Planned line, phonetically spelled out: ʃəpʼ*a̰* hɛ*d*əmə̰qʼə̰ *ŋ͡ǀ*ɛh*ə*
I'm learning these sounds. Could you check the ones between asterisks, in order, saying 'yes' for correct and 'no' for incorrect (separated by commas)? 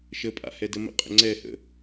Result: yes, yes, yes, no